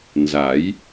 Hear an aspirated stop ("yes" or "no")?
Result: no